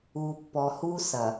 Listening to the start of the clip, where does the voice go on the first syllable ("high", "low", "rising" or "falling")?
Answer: low